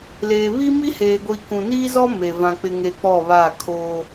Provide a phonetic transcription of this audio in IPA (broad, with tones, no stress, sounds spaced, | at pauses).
l eː˨ β i˦ m i˦ h eː˨ ɡʷ i˨ k ũ˨ n iː˦ z ɔ˦ m e˨ v ã˨ k͡p ɪ˨ ŋ e˨ k͡p ɔ˦˨ β a˦˨ kʰ oː˦